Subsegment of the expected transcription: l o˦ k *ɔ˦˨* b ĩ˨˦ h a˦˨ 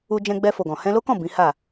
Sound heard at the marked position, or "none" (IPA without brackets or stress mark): ɔ̃˦˨